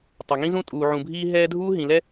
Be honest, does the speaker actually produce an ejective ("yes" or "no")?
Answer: yes